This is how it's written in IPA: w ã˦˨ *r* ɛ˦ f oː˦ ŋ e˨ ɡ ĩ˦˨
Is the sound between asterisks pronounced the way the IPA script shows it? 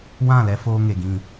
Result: no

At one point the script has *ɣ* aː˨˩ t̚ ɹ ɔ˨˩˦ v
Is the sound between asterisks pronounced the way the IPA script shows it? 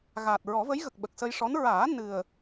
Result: yes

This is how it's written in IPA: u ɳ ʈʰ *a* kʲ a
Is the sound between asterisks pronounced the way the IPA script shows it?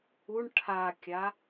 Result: yes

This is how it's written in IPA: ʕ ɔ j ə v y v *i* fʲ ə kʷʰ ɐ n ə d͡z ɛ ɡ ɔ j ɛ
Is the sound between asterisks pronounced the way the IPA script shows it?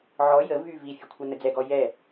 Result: yes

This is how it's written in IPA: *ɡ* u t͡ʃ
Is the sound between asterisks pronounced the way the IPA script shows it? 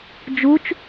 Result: no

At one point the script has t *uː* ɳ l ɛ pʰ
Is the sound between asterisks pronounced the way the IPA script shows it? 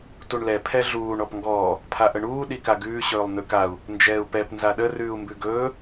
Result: no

